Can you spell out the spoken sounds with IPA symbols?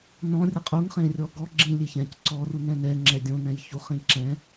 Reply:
n ɔ̃ rʲ ə qʼ u ŋ χ ẽ rʲ ɔ ɡ ɔ ɡ͡ǁ ĩ lʲ e ç ɛ̃ c ǀ ɔ r u n ɛ̃ n ɛ ŋ͡ǁ ɛ dʲ õ n ɛ̃ j ç u χ ĩ ǁ ɛ̃

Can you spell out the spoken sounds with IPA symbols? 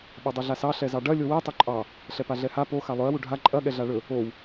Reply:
ɓ o dˤ ɛ ɮ a s ɑ ɬ ɛ z ɑ ɖ ɐ lʲ o w ɛ tˤ ɵ ǃʼ ɑ | ɬ ɛ p a ɮ ɛ h a p o x a lˠ ɵ ɐ̯ w u ɖʱ a ǃʼ ɐ ɠ ɛ ɮ a ɭ ɵ | o w

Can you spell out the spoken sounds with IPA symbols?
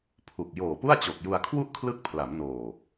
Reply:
pʰ u˨˩ k̚ j oː˨˩ p u˥˩ a̯ t͡ɕ o˨˩ k̚ j u˧ a̯ kʰ w u˥˩ ʔ kʰ l ɯ˦˥ k̚ pʰ l a˩˦ m n oː˨˩

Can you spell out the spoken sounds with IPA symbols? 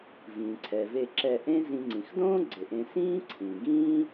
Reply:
v ĩː˩ ǀʰ ɛ˩ v e˨ ǁ ɛ˨ ʔ ẽ˦ z ĩ˨ ŋ͡ǀ ĩ˩ x d õː˥ ɡ͡ǀ ɪ˩ ʔ ẽ˨ s ĩː˦ ǀʰ ĩ˩ ɡ ĩː˥

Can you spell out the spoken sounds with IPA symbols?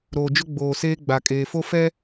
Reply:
ɾ oː˨ d͡ʒ ʊ˦ ɡ͡b oː˨ s eː˦ ɡ͡b a˨ kʼ eː˨ f o˦ f ɛ˦

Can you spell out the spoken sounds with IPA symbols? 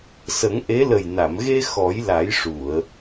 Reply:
s ə˨˩˦ ŋ ʔ e˧˥ l ə˨˩ j n a˨˩˨ m ɣ e˧ x ɔ˨˩˦ j l a˨˩˦ j ʂ u˨˩˨ ə̯

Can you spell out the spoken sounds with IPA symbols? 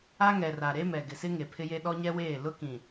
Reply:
a˦ ŋ ɛ˨ r a˨ ɾ e˦ m ɛ˨ ɡ ɪ˨ s ɪ˦ ŋ e˨ pʰ ɪ˦ j e˦ ɗ ɔ˦ ɲ ɛ˦ w eː˦˨ l ʊ˦ k ĩ˨

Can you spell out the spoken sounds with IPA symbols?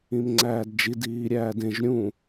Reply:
ĩ m ŋ͡ǀ æː d d͡ʒ i d iː ɾʲ æː d ẽ ʒ ɾʲ ũ

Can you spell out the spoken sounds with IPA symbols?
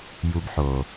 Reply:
j u˧ b ħ o˨

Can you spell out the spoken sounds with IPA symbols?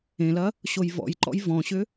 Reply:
ẽ l ɐ | ɕ o j v ɔ̰ j ǃ ɔ̰ j v ɔ̃ ɕ ʏ

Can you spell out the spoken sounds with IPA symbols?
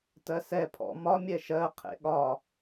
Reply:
t ɜ s ɛ pʰ ɔ̰ m ɒ mʲ ɛ ʃ ɜ qʰ ḛ ɠ ɒ

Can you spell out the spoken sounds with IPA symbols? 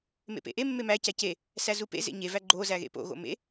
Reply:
m ḛ p ḛ ʔ e mː e m æ c æ c e | s æ z u p ḛ z ḛ ɲ e v æ ɡ͡ǃ o z æ ɣ ḛ p o̰ ɣ o̰ m ḛ

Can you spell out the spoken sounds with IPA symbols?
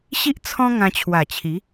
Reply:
ɕ i˦ ʔ t͡sʰ ɔ̃˦ ŋ ã˧ t͡ɕʰ w a˨˩ t͡ɕʰ i˨˦

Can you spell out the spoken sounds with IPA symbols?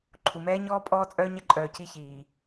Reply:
ǃʰ u˨ m ɛː˦ ɲ ɔː˦ pʼ ɔː˦ t͡sʼ œː˦ ɲ ɛ˦ ǃʼ œː˨ c i˦ ç iː˨

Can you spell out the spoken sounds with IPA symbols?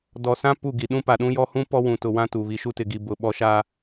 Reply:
d ɔ˨ s ã˦ p u˦˨ ɡ i˨ ɗ ũ˦ p a˨ ɗ ũ˦ j ɔ˦ h ũ˦ p ɔ˦ w ũ˨ t ʊ˨ w ã˦ t u˨ β i˨ ʃ u˦ t ɪ˨ ɡ i˨ b ʊ˨ ɓ ɔ˨ ʃ aː˨

